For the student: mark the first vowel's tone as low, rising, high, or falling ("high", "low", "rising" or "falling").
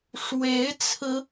rising